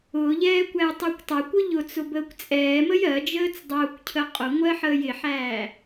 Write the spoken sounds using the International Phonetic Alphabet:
ʊːʎɛː kʷæjtˤækʷtˤækʷʊ ʎʊt͡sʊ bəːkʷt͡sʼɛːməj ɜ d͡ʒəːt͡sdˤʊːkʷcʰə qʼʊŋʷɜ ħəːjɪħæː

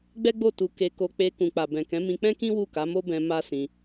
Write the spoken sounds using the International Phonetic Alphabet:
ɡ͡bɛ˦ɡ͡bo˦˨tu˧ke˧ ko˧k͡pe˧ kũ˨k͡pa˨bɛ̃˨kɛ̃˨˦ mĩ˧k͡pɛ̃˦kĩ˦ wu˦˨ka˨˦mo˦bɛ̃˧ ma˦sĩ˧

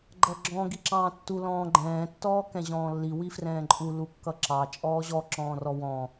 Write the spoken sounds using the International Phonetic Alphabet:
ɡ͡ǃʌɡ͡ǁɔ̃ ɡiǁɑ̃ːtːu lɔ̃ːɡ͡ǃɛ̃ː tːɔːkɛ̃ʑɔ̃ːlːi wifrɛ̃ːǃʼu lukːʌǁɑ t͡ʃʼɔːʑɔ ǁɔ̃ːrɔwɔ̃

